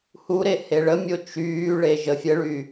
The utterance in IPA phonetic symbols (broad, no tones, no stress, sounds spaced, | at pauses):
h u ɾ e h e ɭ ə mʲ o t͡ʃ yː ɭ e ʒ ə fʲ ə ɭ y